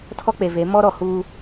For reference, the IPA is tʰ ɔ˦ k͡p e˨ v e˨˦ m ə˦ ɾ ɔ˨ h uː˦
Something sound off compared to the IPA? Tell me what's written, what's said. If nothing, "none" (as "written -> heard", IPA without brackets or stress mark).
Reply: ə˦ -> ɔ˦